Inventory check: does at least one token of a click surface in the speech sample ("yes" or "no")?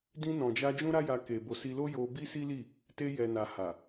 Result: no